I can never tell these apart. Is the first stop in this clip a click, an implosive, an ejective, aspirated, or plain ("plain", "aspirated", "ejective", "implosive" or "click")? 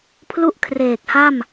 aspirated